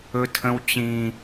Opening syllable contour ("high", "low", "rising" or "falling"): high